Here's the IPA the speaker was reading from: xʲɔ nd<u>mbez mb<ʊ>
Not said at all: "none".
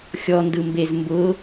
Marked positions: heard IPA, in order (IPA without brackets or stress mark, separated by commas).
ɯ, ʊ